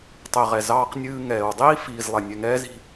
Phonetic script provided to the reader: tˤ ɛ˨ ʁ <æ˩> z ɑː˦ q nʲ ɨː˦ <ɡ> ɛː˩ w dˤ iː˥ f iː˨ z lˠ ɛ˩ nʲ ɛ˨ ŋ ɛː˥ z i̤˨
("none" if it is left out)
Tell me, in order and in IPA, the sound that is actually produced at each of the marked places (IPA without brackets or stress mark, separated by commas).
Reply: ɛ˩, ŋ